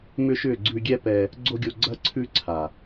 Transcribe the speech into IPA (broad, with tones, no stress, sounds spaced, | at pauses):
m ʏ˦ ʃ ʏ˦˨ ɡ͡ǀ ʉ˧ ɡʲ ɛ˦ p ɛ˧ | ɡ͡ǀ o˦ ɡʲ o˧ ɡ͡ǀ ɐ˦ ǀʰ ʉ˦ ǀʰ a˨